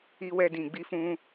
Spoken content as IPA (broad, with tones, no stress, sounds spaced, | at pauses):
i˧ w ɛ˧ d ĩ˨ ɡ͡b i˧ f ũ˧